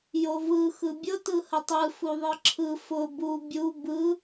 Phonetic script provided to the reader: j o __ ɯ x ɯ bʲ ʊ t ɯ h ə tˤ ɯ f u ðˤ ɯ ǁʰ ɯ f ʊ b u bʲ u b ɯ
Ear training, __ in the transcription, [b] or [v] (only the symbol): v